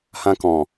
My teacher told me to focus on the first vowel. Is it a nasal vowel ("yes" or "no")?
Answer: yes